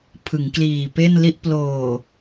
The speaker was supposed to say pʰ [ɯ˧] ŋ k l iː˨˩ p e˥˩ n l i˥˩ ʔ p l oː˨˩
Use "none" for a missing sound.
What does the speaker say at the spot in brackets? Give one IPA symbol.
ɯ˩˦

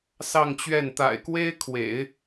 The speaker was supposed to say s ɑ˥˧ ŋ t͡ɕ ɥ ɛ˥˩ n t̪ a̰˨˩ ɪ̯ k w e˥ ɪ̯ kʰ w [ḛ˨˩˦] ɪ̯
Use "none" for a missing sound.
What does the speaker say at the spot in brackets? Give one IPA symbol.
ḛ˨˩˦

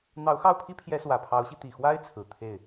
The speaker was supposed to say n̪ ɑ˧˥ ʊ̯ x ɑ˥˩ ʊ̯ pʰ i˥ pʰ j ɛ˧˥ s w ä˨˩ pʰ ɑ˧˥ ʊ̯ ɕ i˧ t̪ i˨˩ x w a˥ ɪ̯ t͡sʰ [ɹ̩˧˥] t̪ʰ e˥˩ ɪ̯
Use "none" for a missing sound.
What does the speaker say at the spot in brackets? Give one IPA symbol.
ɹ̩˨˩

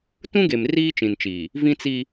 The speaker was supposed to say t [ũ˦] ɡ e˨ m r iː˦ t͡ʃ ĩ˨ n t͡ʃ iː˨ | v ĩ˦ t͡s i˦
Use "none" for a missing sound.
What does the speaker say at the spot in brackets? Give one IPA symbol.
ũ˦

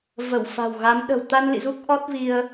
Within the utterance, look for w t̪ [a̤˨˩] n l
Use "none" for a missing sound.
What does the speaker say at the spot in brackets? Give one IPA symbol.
a˧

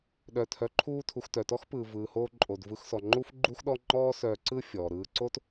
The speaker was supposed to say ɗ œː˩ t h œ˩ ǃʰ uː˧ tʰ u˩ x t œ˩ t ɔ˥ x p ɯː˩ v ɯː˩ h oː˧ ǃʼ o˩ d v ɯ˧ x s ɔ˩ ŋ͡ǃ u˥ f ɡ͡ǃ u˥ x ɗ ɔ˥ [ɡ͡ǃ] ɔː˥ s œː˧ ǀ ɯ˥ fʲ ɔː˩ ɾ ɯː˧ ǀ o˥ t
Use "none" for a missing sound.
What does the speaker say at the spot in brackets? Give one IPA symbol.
ŋ͡ǃ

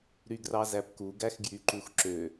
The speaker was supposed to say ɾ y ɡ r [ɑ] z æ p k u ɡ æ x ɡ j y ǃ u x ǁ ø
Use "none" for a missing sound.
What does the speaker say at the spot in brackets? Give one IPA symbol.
ɑ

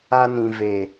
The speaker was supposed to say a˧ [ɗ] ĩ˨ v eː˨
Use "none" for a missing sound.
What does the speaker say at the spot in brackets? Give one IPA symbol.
n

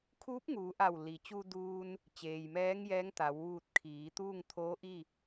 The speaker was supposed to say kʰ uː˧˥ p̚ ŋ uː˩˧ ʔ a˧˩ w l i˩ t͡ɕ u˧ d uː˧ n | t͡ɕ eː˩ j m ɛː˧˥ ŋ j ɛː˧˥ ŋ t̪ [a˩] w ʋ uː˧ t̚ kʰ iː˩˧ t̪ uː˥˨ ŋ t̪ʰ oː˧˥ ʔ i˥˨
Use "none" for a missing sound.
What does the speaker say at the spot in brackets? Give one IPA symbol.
a˩˧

